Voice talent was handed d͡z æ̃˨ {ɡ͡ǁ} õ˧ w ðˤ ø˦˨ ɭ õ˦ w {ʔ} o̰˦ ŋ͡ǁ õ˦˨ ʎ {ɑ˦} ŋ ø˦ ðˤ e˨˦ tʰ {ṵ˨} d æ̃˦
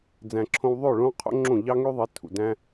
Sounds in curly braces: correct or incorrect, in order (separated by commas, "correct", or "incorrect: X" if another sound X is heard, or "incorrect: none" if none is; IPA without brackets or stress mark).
incorrect: ǁʰ, incorrect: qʰ, correct, correct